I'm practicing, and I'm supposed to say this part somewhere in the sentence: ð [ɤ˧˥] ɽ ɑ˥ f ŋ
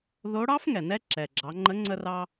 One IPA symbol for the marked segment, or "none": o˧˥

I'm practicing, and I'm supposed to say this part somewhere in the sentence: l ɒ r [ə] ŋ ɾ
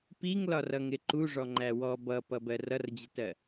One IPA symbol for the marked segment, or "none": ʌ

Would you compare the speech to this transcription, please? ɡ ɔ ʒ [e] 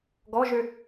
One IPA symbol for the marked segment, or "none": ø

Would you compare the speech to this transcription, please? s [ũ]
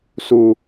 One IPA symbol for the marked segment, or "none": u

